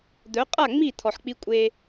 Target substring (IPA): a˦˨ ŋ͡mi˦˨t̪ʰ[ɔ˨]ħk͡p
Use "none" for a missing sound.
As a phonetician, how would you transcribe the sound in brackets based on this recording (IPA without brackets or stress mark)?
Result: ɔ˨